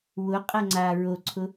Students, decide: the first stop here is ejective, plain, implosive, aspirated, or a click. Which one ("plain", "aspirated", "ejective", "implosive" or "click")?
ejective